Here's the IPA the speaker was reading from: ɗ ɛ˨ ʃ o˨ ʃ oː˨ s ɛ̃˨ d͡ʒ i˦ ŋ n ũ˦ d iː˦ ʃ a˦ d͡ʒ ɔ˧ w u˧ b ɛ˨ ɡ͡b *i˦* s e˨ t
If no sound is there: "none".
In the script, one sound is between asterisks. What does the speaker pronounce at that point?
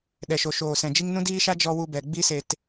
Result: i˧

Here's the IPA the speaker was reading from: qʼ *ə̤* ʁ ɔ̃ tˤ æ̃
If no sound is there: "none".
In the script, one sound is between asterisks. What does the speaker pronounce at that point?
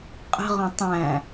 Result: ə̤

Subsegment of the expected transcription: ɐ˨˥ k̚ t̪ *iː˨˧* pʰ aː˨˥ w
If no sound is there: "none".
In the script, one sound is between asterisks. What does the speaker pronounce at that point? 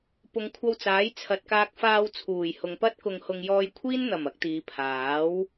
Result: iː˨˧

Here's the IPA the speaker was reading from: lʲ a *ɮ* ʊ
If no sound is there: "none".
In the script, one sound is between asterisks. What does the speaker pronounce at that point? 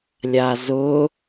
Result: z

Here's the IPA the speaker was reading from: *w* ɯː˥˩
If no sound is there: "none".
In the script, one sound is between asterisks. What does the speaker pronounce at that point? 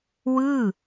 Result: w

